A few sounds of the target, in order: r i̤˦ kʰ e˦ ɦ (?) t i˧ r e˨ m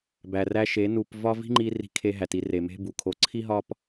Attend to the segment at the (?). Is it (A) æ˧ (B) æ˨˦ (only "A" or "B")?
A